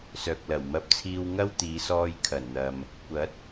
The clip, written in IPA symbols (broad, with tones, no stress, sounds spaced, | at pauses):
s œː˨ k̚ l ɐ˨˩ w m ɐ˧ p̚ t͡sʰ iː˧ w ŋ ɐ˥ w t̪ iː˨˧ s ɔː˧ j kʰ ɐ˨˩ n n̪ ɐ˨ m | kʷ ɐ˨˥ t̚